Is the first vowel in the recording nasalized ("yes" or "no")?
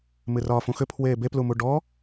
no